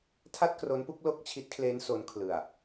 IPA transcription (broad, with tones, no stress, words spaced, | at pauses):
tʰa˥˩t̚kro˦˥npu˦˥k̚ lo˥˩k̚t͡ɕʰi˦˥t̚kʰleː˦˥n so˦˥nkʰlɯ˨˩a̯